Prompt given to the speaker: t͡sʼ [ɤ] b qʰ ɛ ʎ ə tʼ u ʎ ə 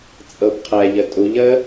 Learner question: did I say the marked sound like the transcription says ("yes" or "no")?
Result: yes